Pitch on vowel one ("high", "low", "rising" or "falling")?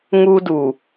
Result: high